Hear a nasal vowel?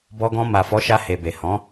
yes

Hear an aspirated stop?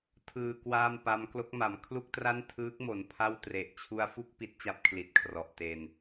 yes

